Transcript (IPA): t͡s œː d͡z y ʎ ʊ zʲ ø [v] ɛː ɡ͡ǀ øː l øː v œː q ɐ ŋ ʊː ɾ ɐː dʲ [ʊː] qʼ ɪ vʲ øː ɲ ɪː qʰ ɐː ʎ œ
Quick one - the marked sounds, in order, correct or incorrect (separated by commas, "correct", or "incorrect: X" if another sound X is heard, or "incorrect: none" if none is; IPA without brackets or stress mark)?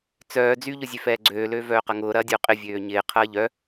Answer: incorrect: f, correct